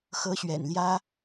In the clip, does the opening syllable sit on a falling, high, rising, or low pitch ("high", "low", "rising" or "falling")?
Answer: rising